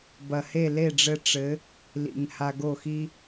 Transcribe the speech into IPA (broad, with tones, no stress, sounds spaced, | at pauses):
b ɐ˨ h e˦˨ l e˦˨ ɖ͡ʐ ɘ˧ ʈ͡ʂ ɘ˨˦ | l ḭ˨ ŋ h a˧ ɡ o˦˨ x i˦